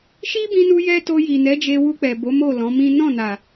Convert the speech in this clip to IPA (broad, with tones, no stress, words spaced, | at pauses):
ʃi˦bĩ˧nu˧jɛ˧ to˧ji˨nɛ˨˦d͡ʒe˧ wu˧k͡pɛ˨bo˨˦ mo˦˨lɔ̃˨˦mĩ˦ nɔ̃˦˨na˨